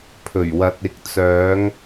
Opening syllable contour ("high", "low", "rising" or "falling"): low